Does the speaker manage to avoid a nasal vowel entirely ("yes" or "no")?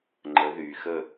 yes